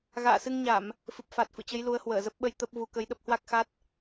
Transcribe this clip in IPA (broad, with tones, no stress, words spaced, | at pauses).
ɣa̰ː˧˨sɨ˧ŋɲa˧˩˨m | fɨ˨˩p̚ fa˨˩t̚fɨ̰˧˨t͡ɕə˨˦j lu˨˦ə̯hwəː˧˩zə˦˥p̚ɓə˧j t̪ə˦˥p̚vu˨˦kə˨˦j ɗə˦˥p̚hwa˦˥k̚xa˦˥t̚